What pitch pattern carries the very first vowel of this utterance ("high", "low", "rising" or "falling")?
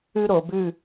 high